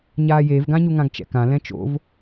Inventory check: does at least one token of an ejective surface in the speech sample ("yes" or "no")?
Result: no